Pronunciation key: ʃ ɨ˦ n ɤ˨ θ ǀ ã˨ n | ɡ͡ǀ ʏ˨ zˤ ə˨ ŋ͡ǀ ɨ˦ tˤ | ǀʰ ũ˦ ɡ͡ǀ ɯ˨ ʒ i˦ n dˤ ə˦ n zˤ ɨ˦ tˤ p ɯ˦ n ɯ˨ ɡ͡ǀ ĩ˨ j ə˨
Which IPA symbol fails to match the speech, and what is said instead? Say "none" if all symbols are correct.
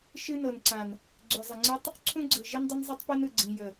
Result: θ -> n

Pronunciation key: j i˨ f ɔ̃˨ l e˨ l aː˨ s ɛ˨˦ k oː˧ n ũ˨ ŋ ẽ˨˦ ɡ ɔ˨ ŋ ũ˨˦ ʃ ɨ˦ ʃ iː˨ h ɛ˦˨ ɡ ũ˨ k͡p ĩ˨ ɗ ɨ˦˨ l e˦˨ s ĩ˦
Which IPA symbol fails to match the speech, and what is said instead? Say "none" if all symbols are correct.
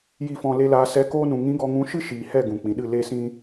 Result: ẽ˨˦ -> ĩ˨˦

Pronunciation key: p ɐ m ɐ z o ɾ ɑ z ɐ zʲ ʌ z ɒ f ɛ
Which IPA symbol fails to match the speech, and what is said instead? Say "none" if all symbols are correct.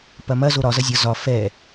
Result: ɑ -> ɒ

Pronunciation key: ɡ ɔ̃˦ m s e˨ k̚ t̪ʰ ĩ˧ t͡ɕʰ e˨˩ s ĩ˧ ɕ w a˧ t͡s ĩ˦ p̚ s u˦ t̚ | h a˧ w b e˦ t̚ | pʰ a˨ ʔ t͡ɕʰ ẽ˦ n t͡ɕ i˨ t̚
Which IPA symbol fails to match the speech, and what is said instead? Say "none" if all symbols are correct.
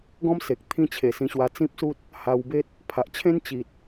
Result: none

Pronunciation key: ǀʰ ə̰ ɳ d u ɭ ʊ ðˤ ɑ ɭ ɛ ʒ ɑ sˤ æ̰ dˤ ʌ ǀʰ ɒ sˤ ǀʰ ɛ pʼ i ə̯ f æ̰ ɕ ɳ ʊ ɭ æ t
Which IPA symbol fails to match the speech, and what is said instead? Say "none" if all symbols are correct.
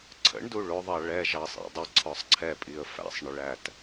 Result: ɕ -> sˤ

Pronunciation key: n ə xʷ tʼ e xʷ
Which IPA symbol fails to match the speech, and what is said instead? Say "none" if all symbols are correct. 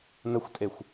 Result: none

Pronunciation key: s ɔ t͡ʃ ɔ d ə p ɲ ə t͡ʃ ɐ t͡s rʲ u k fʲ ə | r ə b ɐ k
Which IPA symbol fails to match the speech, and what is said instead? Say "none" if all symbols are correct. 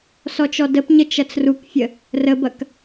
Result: rʲ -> r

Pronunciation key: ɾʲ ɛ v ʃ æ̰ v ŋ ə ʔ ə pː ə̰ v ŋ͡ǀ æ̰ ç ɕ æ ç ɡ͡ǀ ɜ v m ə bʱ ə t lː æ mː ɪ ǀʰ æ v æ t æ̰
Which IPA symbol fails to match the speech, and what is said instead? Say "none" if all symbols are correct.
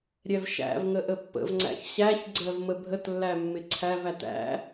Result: none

